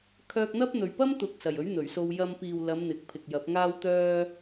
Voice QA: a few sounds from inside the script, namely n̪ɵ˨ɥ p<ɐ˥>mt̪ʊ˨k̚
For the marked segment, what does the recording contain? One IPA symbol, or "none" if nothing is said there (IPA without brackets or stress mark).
ɐ˥